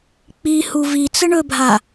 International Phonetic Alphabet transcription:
k͡pi huvit͡sə ɳɵbʱa

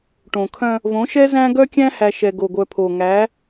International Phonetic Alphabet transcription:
ʈõ˨kʰœ̃˦ | võ˨˦ʃɛ˦ zæ̃˦ ɡœ˦kʲæ̃˦hæ˨ʃɛ˨ ɡo˨ɡʷœ˨pʰo˨ ŋæ˨˦

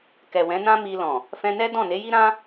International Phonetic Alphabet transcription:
kɛ˨wɛ̃˨˦nã˦mi˧ lɔ̃˨ | fɛ̃˧nɛ˦ dɔ̃˦˨ne˨˦ji˦ ɾã˦

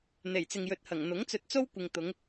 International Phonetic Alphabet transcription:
n̪e˨˩jt͡sɪ˨ŋjɵ˨t̚hɐ˨˩ŋ n̪ʊ˨˥ŋt͡sɵ˧t̚t͡so˥wkʷɪ˨ŋ t̪ʊ˨˧ŋ

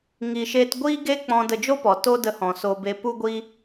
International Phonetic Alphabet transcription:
ŋi˨ʃeː˧t ɡʷiː˦ɡe˦k͡pɔ̃˧ də˧d͡ʒo˦pɔ˨ to˦də˧ hɔ̃˨so˧be˧ pu˦ɡʷi˦

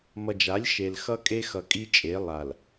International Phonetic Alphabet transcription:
mʌ˨d͡ʒa˨˦lʲ ʃe˨lxʌ˦ kʼe˦xʌ˨kʼi˦t͡ʃʼe˨˦ lˠa˨l

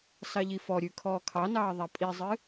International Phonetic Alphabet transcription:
sɑʎifɔɾʲʉ kʰɔːkʰɑnɑː ðˤæpʼizˤɨ

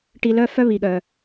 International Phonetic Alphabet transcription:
ʈi˦lœ˥ fœ˦βi˨ɠœ˨

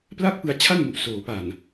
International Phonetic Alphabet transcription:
pla˥˩k̚pɯ˧a̯ t͡ɕʰa˥˩n mu˨˩ʔ soː˩˦pa˨˩n

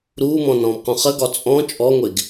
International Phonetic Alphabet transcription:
ɾuːmɔ̃nɔ̃ːmqũ χəɡɒ t͡sʼɔ̃ t͡ʃʼɔŋʷeɡ

